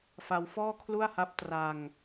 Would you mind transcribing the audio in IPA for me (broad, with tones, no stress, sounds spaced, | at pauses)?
f a˧ w f ɔː˥˩ kʰ l u˥˩ a̯ h a˦˥ p̚ t r a˧ ŋ